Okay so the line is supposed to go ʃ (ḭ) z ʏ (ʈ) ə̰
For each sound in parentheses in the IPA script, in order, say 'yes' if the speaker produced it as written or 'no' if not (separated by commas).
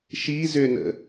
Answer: no, no